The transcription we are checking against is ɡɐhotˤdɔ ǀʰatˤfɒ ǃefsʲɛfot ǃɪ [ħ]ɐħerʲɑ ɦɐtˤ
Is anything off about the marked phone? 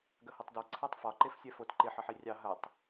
no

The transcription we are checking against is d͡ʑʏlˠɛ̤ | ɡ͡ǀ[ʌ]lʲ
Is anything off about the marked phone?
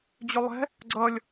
no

